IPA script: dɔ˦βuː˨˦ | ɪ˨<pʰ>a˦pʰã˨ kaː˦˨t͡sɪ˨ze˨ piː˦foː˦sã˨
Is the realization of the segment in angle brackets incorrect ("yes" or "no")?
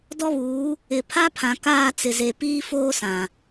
no